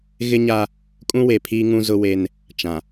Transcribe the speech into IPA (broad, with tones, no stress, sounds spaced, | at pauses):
ɣ ɪ˦ ɲ a˦ | kʼ ũ˦ w e˨ pʰ iː˦ ŋ ũ˦ z ʊ˦ w e˦ n | t͡ʃ ã˨